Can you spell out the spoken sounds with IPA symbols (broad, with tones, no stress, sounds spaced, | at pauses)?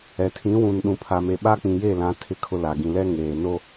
ɛ˨ tʰ ĩ˨˦ w ũ˨ n ɗ ũ˨ pʰ a˨ m e˨ ɓ a˦ k͡p ĩ˨ j e˦˨ l ã˨˦ tʰ ɪ˦ kʰ ʊ˦ l a˨ ɡ ĩ˨ l ɛ˦ ŋ eː˨ n o˦